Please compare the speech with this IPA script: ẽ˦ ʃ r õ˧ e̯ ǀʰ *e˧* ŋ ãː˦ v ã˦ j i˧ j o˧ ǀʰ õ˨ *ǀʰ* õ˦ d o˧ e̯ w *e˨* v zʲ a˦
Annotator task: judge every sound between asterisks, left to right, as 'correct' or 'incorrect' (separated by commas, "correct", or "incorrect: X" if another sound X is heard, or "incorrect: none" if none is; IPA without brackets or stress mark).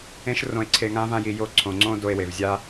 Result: correct, incorrect: ŋ͡ǀ, correct